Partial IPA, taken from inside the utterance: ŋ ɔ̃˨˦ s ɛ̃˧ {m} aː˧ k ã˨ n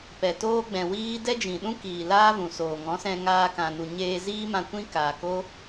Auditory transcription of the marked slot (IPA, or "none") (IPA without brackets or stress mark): ŋ